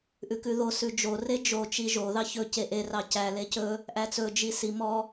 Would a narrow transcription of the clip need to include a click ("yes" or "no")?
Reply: no